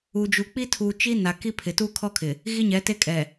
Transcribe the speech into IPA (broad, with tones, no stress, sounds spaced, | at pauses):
u˨ d͡ʒ u˨ k͡p i˦ tʰ u˨ t͡ʃ i˦ n a˨ k i˦ pʰ ɪ˨ t uː˦ kʰ ɔ˦ kʰ ɪ˨ | ɣ i˦ ɲ ɛ˨˦ t e˦ kʼ ɛ˨